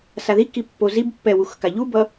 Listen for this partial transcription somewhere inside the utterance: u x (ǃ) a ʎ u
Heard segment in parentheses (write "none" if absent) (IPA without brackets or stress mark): k